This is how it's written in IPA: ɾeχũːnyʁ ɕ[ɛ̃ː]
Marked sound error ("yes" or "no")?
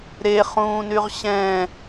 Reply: yes